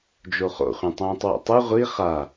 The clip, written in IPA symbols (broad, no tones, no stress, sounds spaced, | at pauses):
d͡ʒ o χ o̰ χʷ ĩ tˤ ũː tˤ w o̰ tˤ ɯ ʁʷ i χ a